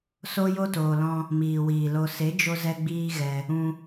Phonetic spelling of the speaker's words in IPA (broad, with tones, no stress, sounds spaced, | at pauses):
s o˦ j o˦ t oː˨ l ɔ̃˧ | m iː˨ w iː˨ l o˧ s e˨˦ d͡ʒ o˧ z ɛ˦ ɡ͡b iː˦ ɣ ɛ˧ | ũ˧